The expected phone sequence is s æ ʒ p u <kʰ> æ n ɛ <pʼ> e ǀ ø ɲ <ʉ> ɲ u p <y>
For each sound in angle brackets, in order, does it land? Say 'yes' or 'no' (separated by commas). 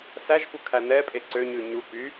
yes, yes, yes, yes